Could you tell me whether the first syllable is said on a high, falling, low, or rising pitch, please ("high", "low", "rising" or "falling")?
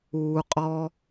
low